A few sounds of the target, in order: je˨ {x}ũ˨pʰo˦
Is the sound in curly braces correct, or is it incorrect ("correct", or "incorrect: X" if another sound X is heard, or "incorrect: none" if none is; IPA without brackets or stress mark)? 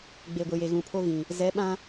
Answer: incorrect: ɣ